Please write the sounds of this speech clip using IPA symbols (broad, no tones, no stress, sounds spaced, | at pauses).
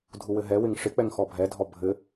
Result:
dʱ u w ɘ ɦ ɛ w ɪ ŋ ʂ ɪ k͡p ɛ ŋ x ɔ bʱ ɛ dʱ ɔ bʱ ɘ